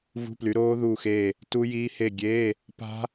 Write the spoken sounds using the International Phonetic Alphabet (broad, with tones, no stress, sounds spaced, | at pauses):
v ṳ˧˥˧ p l y˨˦ ɾ oː˦˥ ð uː˦˨ x eː˦˨ | t u˦˥ j iː˦˥ h e˦˨ ɡʲ eː˧˥˧ | p a̤˦˥